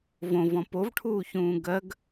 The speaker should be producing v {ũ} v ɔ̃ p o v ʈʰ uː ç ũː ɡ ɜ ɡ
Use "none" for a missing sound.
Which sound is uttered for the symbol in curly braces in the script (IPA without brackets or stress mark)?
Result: õ